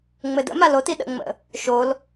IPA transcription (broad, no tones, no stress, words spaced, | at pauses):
ŋ͡mɘdə̰ malot iɗə̰ŋ͡mə̰ | ʃol